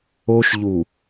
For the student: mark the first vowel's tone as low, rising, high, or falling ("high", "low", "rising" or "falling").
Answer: high